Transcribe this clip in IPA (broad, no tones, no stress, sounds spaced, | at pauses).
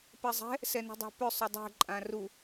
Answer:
p ɛ zˤ ɛ̤ | s ɛ n ṳ dˤ a̤ p ʏ sˤ ʏ dˤ ɛ̤ ǃʼ ã r u